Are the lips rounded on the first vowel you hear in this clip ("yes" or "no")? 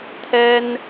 no